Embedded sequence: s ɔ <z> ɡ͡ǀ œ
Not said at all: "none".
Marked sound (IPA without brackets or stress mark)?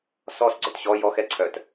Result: s